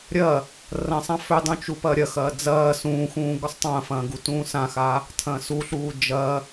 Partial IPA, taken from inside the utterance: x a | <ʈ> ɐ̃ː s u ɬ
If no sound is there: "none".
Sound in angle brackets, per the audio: tʰ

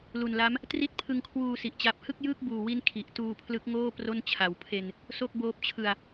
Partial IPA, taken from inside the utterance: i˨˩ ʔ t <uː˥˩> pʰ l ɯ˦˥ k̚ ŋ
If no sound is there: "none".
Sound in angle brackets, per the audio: uː˧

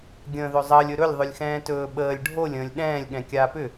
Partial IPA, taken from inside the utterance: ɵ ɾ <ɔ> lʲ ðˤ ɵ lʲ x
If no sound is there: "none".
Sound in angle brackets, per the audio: ɵ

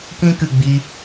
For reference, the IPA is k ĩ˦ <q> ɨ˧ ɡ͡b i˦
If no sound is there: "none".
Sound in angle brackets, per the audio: k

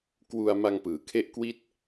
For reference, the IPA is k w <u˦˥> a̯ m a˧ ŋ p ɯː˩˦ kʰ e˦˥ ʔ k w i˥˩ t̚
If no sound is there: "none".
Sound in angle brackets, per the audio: u˧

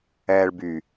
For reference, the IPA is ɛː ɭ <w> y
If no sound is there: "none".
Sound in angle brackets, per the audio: b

